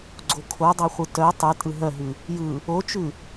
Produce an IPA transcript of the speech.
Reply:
ɡ͡ǀokʰodˤoχʷɯ tœ tˤʉ tʼɯɦœɦʉ | jɯ | ot͡ʃʉ

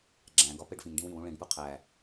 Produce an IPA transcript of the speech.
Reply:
ɡ͡ǁæ̃ɡɒ peɖfĩŋɖĩw ĩwũ ɭĩɖpu qʰæ

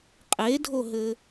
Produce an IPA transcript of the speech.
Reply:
qʼedʱoɦɘ

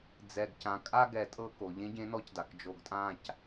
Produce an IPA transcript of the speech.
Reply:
d͡zɛ˨ɡcã˨ kʼa˦ ɡɛ˨ tʼɤ˦ko˨ ʎẽ˦ɟẽ˦nɔ˦cda˨k d͡ʒo˨ɡtʼã˦˨c

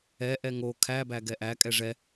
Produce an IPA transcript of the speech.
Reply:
ɛ ʔɛŋo kʰæbæ ɡɛʔæ kʼɛʐɛ

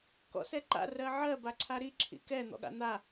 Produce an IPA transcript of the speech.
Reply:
kɔ̰sɛǃa̰ rɜʕɜ baǀʰaɾi ǁʰḭkɛ n̪ɔ̰ɠa̰n̪a

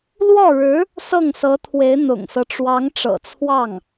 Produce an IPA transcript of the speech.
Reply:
lwɔ˥˩ɻɻ̩˧˥ | sɤ˥˩ŋsɤ˧˥t̪ʰwe˧˥ɪ̯ n̪ʊ̰˨˩ŋsɤ˦ʈ͡ʂwɑ˧˥ŋ ʈ͡ʂɤ̰˨˩t͡sʰwɑ˥˩ŋ

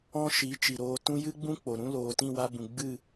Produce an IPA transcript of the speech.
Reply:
ɔ̃˦ ʃi˨˦ t͡ʃi˨ɾoː˧tũ˦ jɨ˦ɡ͡bũ˦ k͡po˨ɾũ˦ loː˧ tĩ˦˨wa˧bũ˨ ɡ͡bɨ˦˨

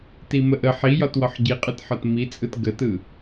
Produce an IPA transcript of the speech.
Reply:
timəʔə ħijɒt wɒħɟiqʼɯtħɒt mit͡sʼɯt ɡətɯ

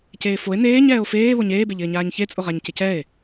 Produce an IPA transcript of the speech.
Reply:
ceːfoe̯ neːɲ ɛːo̯feː βoɲeːbeʎɪː ɲaːɲçet͡sʼʊʁaɲ cɪcɛe̯

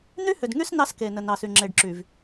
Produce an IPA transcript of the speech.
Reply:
n̪y˦hʏ˨dŋy˦s nɑ˦ske˨nə˨ nɑ˨sy˨ŋ͡ǁe˨ɖǁy˨v

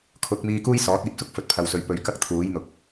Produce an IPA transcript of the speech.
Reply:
kʰʊ˨˥k̚miː˧ kuː˥jsɔː˨˥t̚ iː˨p̚sʊ˥k̚ fɵ˨t̚pʰɐ˨wsɵ˨ɥ pɵ˨ɥkɐ˥k̚ t̪ʰuː˨˥jn̪ʊ˨k̚

